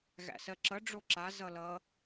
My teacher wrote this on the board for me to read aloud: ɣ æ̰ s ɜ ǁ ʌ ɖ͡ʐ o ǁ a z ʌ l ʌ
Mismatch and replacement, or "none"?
none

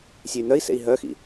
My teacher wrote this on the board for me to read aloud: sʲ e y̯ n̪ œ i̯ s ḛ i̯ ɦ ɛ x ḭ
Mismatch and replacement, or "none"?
ɛ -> œ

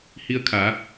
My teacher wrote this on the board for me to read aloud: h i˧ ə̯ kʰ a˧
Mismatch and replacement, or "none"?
a˧ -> a˩˧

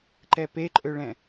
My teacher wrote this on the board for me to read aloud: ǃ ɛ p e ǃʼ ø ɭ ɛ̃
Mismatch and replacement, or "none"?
none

